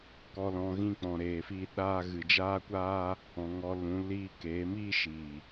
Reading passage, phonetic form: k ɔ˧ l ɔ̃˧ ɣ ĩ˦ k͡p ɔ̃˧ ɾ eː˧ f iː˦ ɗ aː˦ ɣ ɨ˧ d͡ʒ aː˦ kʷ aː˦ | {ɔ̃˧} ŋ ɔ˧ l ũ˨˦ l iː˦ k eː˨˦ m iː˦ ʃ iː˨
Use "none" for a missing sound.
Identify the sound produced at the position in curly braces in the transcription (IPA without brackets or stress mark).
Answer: ɔ̃˨